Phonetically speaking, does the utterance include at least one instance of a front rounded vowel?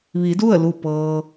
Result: no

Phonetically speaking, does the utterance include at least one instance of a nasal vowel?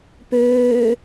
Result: no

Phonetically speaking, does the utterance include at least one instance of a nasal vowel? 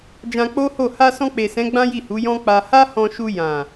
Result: yes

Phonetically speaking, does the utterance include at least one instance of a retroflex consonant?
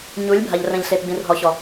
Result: no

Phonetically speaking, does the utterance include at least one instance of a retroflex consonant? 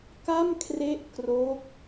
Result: no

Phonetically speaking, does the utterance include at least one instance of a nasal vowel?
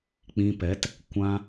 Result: yes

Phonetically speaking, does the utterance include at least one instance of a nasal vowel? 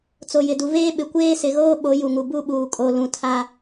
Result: yes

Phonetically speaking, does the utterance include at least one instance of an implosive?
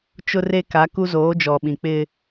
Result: yes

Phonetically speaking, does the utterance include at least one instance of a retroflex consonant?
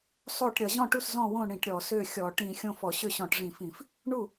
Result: yes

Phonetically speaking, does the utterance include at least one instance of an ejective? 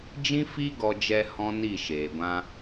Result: no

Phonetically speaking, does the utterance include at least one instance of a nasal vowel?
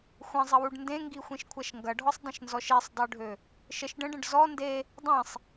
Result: yes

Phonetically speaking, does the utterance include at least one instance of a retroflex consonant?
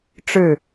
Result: yes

